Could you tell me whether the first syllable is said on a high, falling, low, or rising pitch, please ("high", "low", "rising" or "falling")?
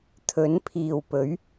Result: rising